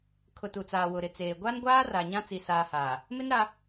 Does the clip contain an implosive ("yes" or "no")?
no